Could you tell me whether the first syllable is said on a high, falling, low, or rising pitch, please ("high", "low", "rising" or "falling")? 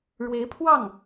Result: rising